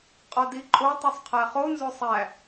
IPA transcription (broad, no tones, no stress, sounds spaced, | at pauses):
qʼ ɒ d i ǃʼ o tˤ u sˤ qʰ æ χ o n z o sˤ æ